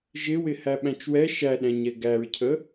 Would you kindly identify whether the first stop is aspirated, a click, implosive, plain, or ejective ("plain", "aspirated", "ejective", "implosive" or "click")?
implosive